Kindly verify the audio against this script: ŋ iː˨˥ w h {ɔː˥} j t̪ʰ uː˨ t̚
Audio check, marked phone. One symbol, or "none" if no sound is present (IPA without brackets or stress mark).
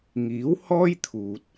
ɔː˥